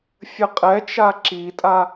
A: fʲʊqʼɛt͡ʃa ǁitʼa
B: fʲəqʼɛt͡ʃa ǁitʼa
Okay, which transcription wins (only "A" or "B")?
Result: B